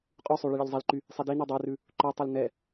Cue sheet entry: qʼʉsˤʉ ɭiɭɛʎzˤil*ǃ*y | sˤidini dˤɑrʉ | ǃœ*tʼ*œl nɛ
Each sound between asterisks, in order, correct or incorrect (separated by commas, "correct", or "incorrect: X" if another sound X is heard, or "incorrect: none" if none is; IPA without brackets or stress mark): correct, incorrect: tˤ